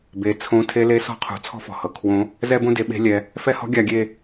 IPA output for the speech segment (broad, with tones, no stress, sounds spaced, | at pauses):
b e˩˧ t͡sʰ õ˧˥ tʰ e˧ l e˧˥ s ɔ̤˧ qʰ ṳ˩˧ t͡sʰ ɔ̤˥ f ɔ̤˩ h ɤ˩˧ kʰ w õ˧˥ | z ɛ˥ b õ˥ d e˧ ɓ e̤˧˥ lʲ ɛ˩˧ | f ɛ˥ h ɔ̤˥ ɡʲ a˧ ɡʲ e˧